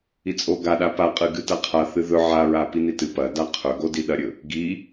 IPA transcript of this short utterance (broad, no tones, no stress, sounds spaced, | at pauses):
i t͡sʼ o ɡ a ɗ a p a qʼ ɨ ɡ ɨ t ɐ qʰ a θ ɨ ð ɵ ʕ a ɹ a p i n i t ɨ p ɐ d a qʰ ɵ ɡ o d i ɗ ɐ ɾʲ ɵ | ɡ i